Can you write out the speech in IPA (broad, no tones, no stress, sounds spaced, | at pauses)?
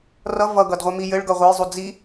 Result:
r ʌ v ʌ ɡ ʌ d ʁʷ a m i j ɘ ɭ ɡ ʌ ʁʷ ʌ j zˤ u d͡z i